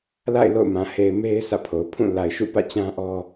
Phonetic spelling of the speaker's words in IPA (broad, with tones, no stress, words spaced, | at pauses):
la̰˦˨ɪ̯ lo̰˦˨ʊ̯mã˨ he˨ɪ̯me˦ɪ̯ sä̰˦˨pʰo˨ʊ̯ pʰũ˦˨ la˨ɪ̯ʃṵ˦˨pä̰˦˨t͡ɕã˦ ʔɔ˦